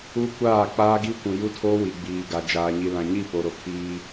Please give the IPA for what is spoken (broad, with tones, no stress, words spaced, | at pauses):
u˦kʷaː˦˨k͡paː˦ ɡi˦kʷũ˨ju˦tʰoː˦ wi˨ɡ͡biː˨ɡa˨ d͡ʒaː˨ɲi˨lã˨ɲi˦˨ po˨ɾo˨ kʰiː˦